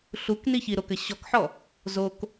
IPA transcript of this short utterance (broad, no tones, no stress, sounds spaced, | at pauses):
ɬ u k n i ç i ɾ o k ɘ ɕ ɔ k ħ ɔ | z o k